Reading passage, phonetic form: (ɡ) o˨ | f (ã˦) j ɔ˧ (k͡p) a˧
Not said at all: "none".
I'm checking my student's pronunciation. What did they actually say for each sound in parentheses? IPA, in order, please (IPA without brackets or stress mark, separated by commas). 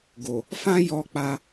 ɡ, ã˦, k͡p